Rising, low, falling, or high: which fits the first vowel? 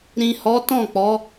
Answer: low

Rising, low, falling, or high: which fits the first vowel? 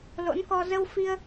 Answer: rising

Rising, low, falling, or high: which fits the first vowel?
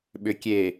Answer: low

